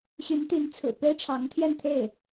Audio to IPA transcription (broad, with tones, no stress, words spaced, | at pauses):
ɕy˧˥nt̪i˧˥nt͡sʰɹ̩˨˩ pe˥ɪ̯ʈ͡ʂʰɑ˧˥ŋt̪ʰjɛ˥˧nt̪ʰe˥˩ɪ̯